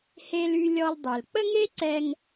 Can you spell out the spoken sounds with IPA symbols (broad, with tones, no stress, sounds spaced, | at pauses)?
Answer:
h e˧ l y˧ lʲ ɔ˧ l dˤ e˩ l k͡p ə˥ ŋ e˥ ǀ ɛ˧ ŋ